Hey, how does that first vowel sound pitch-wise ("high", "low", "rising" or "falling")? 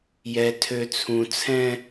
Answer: low